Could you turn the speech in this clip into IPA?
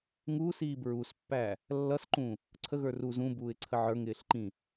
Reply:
ŋ uː s iː b ɹ u s pː æ | lː ʌ s ǃ ũ | ǀʰ ə ɣ ə˞ r u z ũ b uː ɪ̯ ǀʰ ə ʕ ə˞ ŋ ɪː ɬ ǃ ĩ

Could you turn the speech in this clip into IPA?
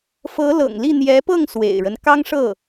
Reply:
f ɤ˧˥ l ɤ̰˨˩ ŋ l i˥˩ n̪ j ɛ˧˥ p ɤ˥˩ ŋ s w ḛ˨˩ ɪ̯ ɻ ə˦ n k ɑ˥ ŋ ʂ ɤ˥˩

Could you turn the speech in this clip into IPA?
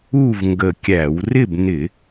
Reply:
u˥˨ v ŋ ɡ ə˧˩ kʲ æ˧˩˧ w r ɪ˥˨ b n ɪ˧˩˧

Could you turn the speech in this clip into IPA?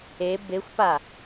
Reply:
e b e xʷ p a

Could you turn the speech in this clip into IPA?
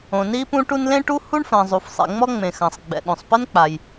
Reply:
õ˩ n i˥ p ũ˥ ʈ u˥ n l ẽ˥ ʈ u˥ h u˥ ɳ f ã˩ zˤ u˩ f sˤ ḭ˩ ŋ͡m ɔ˥ ŋ͡m ẽ˩ x ã˩ sˤ ɡ͡b ɛ̰˩ ɗ õ˩ sˤ p ɘ˥ n k͡p a˩ j

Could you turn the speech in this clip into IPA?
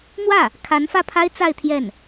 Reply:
n̪ w ä˥˩ | kʰ a˧˥ n f ä˥˩ pʰ a˥ ɪ̯ t͡s a˥˧ ɪ̯ t̪ʰ j ɛ˥˩ n

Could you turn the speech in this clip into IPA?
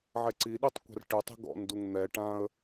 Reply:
ʕ ɛ ǀ i ɗ i tˤ kʷ a̤ r ʈ ɨ tˤ i̤ ɡ ɔ̰ n d u ŋ n̪ ɛ ʈ ã ə̯

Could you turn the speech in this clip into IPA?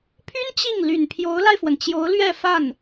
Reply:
pʰ y˥ n t͡ɕ i˥˩ ŋ l y˨˩ n pʰ j o˧˥ ʊ̯ l a˧ ɪ̯ f w ə˩ n t͡ɕ j o˧˥ ʊ̯ l ɥ ɛ˥˧ f a˥˩ n

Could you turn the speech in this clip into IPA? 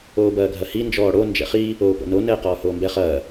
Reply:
oː b ɐː ɡʱ ɐ h i n d͡ʒ ɔː ɽ o n d͡ʒ ɛ̰ χ i | oː p o̰ n o n ɛː q ɔː h oː m b ɛ χ ɐː

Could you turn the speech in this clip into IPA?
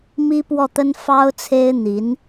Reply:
m i˥ p w ɔ˥˩ t̪ ə˥ n f ɑ˥ ʊ̯ t͡sʰ e˥ ɪ̯ n̪ i˧˥ n

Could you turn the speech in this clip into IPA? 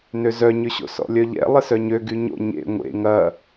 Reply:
n ø z œ ɲ ʏ ɕ o̰ s ɔ̰ lʲ œ ʎ ɛ̰ lˠ ɪ s œ ɲ ø ɡ y ɲ o̰ ɲ ḛ ŋʷ ḛ ŋ ɐ

